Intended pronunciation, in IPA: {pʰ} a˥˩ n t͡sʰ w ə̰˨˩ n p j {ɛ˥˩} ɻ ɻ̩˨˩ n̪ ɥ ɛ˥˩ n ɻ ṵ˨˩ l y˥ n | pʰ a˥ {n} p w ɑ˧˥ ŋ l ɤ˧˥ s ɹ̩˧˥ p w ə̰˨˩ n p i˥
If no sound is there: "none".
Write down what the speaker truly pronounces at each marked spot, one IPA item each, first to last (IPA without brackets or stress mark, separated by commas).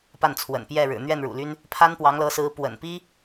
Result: p, ɛ˥˩, n